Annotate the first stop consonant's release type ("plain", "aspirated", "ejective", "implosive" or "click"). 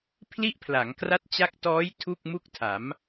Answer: aspirated